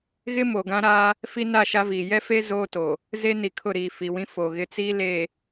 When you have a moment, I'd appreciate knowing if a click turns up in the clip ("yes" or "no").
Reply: no